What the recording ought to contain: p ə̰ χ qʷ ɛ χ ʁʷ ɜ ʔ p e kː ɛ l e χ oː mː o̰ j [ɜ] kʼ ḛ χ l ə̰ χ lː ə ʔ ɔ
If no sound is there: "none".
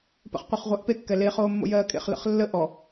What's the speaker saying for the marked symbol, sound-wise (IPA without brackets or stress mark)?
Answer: ɜː